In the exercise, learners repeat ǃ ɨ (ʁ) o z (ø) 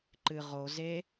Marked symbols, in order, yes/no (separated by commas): yes, no